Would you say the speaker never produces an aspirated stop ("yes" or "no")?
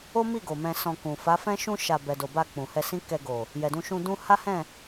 yes